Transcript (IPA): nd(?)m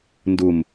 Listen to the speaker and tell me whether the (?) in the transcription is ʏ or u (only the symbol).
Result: u